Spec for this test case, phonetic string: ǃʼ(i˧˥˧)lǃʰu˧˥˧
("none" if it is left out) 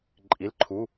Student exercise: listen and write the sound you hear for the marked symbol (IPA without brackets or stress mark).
i˧˥˧